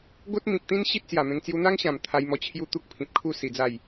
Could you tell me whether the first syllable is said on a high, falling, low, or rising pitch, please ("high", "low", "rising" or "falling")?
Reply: high